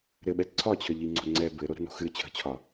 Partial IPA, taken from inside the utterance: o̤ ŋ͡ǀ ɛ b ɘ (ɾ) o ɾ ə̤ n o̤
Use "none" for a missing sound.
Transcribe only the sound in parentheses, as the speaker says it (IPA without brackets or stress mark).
ɾ